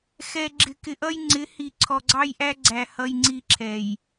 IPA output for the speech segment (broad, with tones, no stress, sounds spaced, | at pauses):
x ɛ˨ ɡ͡ǁ ɪ˨ k ɪ˨ ʔ ʌ˦ j ŋ͡ǀ ɪ˨˦ h i˨ ǀʰ ɔ˨ ɡ͡ǀ ɑ˦ j ʔ æ˦ ɡ͡ǀ æ˨ h ʌ˦ j ŋ͡ǀ i˦ ǁʰ ɛ˨ j